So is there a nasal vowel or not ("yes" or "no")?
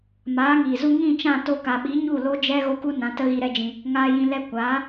yes